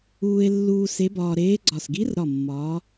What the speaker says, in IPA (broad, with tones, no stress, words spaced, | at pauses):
uː˧e̯lːuː˧ se˧˥bɒː˧ ɾeː˧˥ɡ͡ǀɒ˧˩s ɡi˧˥rɾɒ˧˩ mːɒː˧˥